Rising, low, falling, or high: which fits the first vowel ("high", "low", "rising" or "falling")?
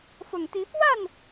low